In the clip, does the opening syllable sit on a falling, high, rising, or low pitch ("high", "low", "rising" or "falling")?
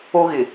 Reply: high